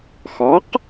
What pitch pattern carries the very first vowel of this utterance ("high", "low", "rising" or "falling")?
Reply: rising